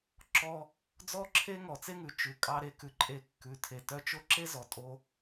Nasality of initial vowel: oral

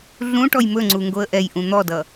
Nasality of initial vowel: nasal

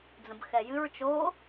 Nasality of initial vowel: nasal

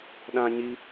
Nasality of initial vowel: nasal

